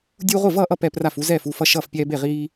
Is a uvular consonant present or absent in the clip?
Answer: present